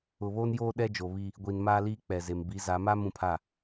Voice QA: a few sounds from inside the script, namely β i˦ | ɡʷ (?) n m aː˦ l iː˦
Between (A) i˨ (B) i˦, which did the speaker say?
A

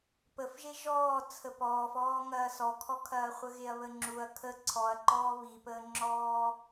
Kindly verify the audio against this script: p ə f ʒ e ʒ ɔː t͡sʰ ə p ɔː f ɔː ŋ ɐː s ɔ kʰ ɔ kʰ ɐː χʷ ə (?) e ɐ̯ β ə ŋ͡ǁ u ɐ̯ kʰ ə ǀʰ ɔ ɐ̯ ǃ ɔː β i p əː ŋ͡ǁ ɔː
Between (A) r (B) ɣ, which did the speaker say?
B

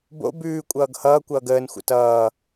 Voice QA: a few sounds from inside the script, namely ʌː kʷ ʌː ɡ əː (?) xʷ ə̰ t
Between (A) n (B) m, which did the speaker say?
A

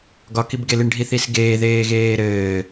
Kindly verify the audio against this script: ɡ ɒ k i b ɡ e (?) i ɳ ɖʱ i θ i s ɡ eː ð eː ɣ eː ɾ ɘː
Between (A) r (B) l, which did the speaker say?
B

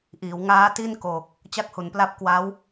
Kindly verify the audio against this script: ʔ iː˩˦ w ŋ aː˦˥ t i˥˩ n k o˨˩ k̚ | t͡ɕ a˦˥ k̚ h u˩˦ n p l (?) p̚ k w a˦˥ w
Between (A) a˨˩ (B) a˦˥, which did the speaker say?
B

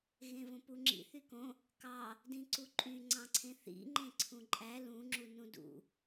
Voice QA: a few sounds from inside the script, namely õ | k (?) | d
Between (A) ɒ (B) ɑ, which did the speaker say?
B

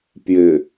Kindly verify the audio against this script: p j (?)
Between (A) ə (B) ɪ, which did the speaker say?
B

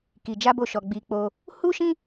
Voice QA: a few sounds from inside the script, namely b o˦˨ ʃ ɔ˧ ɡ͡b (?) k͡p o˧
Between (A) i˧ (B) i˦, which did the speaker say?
A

